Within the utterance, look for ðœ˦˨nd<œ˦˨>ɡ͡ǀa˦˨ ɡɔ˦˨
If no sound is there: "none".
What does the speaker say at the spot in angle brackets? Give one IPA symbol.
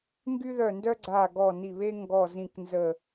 œ˥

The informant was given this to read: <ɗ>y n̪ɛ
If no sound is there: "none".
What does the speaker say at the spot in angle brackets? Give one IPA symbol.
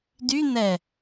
d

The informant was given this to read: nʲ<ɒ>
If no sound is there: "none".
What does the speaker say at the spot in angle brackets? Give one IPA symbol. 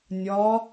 ɒ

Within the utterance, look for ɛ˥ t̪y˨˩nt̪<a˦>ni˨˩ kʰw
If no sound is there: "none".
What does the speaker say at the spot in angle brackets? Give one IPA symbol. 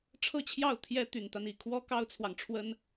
a˦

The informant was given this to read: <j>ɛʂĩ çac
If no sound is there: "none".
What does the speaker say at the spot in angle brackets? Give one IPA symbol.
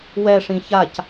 w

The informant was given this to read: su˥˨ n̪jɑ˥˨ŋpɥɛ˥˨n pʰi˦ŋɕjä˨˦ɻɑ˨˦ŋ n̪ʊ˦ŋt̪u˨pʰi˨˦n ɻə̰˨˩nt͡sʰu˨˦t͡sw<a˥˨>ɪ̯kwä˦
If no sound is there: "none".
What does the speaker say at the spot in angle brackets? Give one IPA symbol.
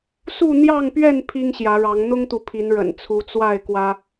a˥˨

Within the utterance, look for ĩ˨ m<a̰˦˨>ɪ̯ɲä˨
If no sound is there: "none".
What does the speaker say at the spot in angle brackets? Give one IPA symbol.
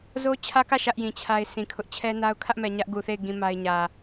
a˦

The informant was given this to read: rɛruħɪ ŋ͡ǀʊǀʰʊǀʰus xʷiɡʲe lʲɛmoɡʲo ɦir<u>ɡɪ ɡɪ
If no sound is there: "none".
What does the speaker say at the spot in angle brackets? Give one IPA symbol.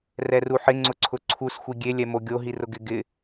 ʊ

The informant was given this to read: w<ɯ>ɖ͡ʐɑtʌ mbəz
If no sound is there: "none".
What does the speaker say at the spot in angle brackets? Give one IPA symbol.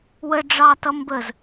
ə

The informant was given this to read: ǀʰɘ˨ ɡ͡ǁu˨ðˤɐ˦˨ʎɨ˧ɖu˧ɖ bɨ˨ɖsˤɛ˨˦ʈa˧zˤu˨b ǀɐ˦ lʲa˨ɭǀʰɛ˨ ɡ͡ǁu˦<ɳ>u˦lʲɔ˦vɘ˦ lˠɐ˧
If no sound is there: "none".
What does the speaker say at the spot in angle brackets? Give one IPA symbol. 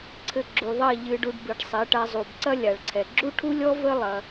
ʈʰ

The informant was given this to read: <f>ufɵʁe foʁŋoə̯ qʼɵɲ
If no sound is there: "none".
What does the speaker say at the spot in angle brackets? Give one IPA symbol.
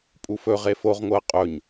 pʼ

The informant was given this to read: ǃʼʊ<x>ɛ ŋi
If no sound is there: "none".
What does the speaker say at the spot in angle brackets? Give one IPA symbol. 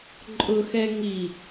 x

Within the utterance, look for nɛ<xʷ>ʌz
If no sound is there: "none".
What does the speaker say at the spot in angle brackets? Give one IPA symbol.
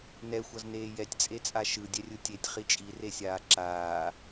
xʷ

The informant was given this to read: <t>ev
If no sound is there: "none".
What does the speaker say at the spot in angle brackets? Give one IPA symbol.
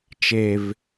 t͡ʃ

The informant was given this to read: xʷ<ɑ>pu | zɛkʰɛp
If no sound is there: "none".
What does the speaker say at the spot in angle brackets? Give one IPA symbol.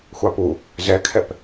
ɑ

